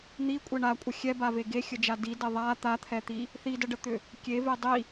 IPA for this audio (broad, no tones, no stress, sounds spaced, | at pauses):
n̪ i kʷʼ ɛ ɳ a kʷʼ ə xʲ ɛ b a v e ɡ e xʲ ə d͡ʒ a d i d ɛ ðˤ a t̪ a t̪ʰ ɛ t̪ i | θ i d ə ɖ ə t̪ ʏ | kʲ e v e dˤ i